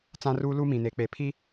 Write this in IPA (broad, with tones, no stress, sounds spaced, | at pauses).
t͡s ã˦ r uː˦ l uː˦ m ĩ˨ n e˨˦ k͡p e˨ pʰ i˦